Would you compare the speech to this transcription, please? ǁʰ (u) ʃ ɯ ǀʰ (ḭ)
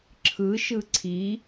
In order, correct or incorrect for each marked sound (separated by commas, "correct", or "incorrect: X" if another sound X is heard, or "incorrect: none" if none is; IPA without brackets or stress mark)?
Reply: incorrect: ɯ, incorrect: i